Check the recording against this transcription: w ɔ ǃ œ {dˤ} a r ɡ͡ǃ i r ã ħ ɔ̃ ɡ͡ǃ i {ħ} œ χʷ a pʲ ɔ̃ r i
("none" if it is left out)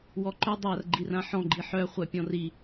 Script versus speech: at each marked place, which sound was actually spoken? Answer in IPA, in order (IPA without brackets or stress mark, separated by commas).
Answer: dˤ, ħ